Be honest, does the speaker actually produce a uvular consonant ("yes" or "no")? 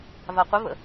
yes